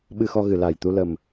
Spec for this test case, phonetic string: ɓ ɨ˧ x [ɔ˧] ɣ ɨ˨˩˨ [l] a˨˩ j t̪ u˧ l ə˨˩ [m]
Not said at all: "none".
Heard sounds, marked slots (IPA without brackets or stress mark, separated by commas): ɔ˧, l, m